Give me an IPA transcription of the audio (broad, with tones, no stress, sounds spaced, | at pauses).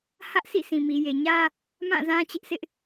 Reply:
h ä˦ ʔ sʰ ḭ˦˨ s ĩ˨ m i˨ j e˨ ɲ ä˦ | m ã˦˨ z ã˦ t͡ɕ ɪ˦ ʔ sʰ ɪ˦ ʔ